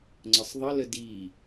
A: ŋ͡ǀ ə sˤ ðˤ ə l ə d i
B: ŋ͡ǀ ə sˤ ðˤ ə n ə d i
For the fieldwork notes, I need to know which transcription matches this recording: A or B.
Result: A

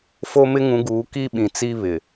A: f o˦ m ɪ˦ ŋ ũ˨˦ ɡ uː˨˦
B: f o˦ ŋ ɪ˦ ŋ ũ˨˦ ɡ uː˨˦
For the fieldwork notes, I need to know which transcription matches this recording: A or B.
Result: A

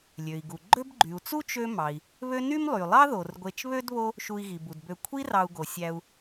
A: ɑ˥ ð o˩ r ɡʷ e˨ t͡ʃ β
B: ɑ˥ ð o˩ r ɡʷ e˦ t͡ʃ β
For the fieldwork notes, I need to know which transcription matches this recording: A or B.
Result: A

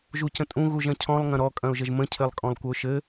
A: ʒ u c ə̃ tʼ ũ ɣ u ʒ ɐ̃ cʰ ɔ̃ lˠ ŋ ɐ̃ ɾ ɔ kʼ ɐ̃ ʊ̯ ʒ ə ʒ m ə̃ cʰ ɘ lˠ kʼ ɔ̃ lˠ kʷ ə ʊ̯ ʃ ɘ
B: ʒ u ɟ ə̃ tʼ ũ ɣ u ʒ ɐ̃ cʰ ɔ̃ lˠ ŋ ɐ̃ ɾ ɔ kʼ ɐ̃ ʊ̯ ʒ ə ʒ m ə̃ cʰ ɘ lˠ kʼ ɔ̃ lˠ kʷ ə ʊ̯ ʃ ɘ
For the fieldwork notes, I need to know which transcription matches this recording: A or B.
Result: A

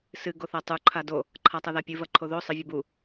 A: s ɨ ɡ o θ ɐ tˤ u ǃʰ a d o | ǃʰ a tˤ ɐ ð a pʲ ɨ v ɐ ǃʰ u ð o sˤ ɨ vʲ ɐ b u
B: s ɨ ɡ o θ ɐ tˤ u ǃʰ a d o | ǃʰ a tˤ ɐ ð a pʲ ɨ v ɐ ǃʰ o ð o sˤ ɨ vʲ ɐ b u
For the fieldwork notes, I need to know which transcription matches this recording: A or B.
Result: B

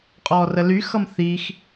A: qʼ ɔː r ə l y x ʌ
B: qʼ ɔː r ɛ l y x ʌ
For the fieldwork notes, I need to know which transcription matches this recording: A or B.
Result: A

